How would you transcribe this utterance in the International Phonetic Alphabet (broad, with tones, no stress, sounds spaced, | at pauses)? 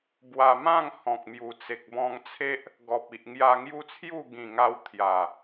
b w a˧ m ã˥˧ ŋ h ɔ̃˨ k̚ m j u˨˩ t͡s e˨ k̚ b ɔ̃˧ ŋ t͡sʰ e˦ ʔ | ɡ ɔ˨ p̚ i˨ ʔ ŋ j a˧ ŋ j u˦ t͡sʰ j u˥˧ ɡ ĩ˨˩ ŋ a˧ w t̪ʰ j a˨˩